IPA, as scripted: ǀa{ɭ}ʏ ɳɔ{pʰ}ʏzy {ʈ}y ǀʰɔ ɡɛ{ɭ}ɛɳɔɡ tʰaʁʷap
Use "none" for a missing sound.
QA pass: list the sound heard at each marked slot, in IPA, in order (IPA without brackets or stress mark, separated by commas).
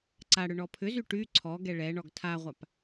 ɽ, pʰ, ʈ, ɭ